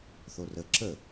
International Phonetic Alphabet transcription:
θ o r ə ǁ ə

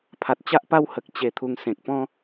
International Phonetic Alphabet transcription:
pʰ a˨ t̚ t͡ɕ a˦ ʔ p a˦ w h ə˨ k̚ t͡ɕ e˨˩ t̪ʰ u˨˩ ŋ s ẽ˨ k̚ p ɔ̃˦

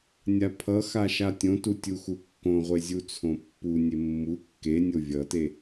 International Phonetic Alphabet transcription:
nʲ a pʰ ʌ x a ʃ a tʲ õ t u tʲ u x u kː õ ʁʷ e zʲ u t͡sʰ õ pː u nʲ e mː u kː e nʲ o vʲ ʌ t e

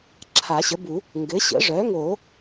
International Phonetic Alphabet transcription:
ǁʰ a˨˩˦ ɕ ə˩˥ b u˨˩˦ | ŋ ɡ ɘ˩˥ ɕ ə̰˩˥ ʐ œ˩˥ ŋ o˨˩˦

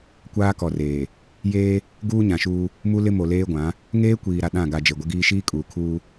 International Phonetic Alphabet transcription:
kʷ aː˦ k ɔ˨ r eː˨ | j eː˦ | ɡ uː˦ ɲ ã˨ ʃ uː˦ | m u˦ l ɪ˦ m o˨ l eː˦ ɡʷ ã˨˦ | ŋ eː˦ kʷ iː˨ ɾ a˨ ɗ ã˦˨ ɡ a˨ d͡ʒ e˨ ɡʷ ɪ˦ ɡ iː˦ ʃ iː˦ kʼ uː˨ kʰ uː˦

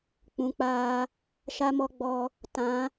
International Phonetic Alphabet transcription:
k͡p ũ˨˦ k͡p aː˧ | ʃ a˦ m ɔ˦ ɡ͡b ɔ˧ | t ã˨˦

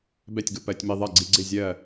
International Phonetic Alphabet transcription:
b ɛ˥˨ tʲ ɡ ʊ˧˩˧ p ɜ˧˩˧ tʲ m i˧ ðˤ ɜ˥˨ ɡ͡ǀ i˧ ɡ͡ǀ ɪ˥˨ zʲ ɜ˥˨

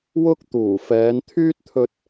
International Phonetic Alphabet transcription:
w ʊ˥ k̚ t̪ uː˨˩ f ɛː˨˧ n t̪ʰ yː˥ t̚ t̪ʰ ɵ˧ t̚

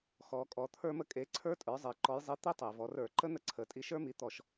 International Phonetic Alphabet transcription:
x ɔ˩˧ kʼ ɔ˩˧ t̪ʰ ə˞˧ m ə˧ kʼ e˩˥ ǀʰ ə˞˦˥ tʼ ə˞˩˥ zˤ e˩ ǃ ɔ˩˧ j zˤ i˩˥ t̪ i˧ tˤ e˩ v ɔ˩˧ r ə˞˧˩˧ ǃ ə˦˥ n̪ ə˧ ǀʰ ə˩ tʼ i˧ ʃ ə˞˦˥ m i˩˥ t̪ ɔ˧˩˧ ʃ

